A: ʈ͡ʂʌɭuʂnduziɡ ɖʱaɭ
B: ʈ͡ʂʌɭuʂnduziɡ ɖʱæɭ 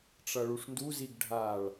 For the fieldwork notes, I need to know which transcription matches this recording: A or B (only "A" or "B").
A